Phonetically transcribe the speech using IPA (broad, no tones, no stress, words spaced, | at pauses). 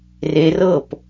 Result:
re rɤp